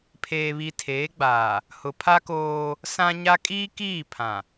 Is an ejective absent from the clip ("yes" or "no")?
no